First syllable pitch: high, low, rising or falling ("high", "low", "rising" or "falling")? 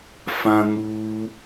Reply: high